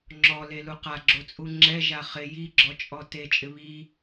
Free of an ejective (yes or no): no